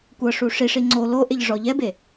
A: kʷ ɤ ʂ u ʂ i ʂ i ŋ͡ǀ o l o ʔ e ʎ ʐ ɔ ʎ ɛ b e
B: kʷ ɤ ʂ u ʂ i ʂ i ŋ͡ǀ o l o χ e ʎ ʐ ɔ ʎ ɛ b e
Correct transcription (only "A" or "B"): A